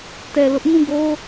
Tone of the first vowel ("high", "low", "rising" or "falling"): low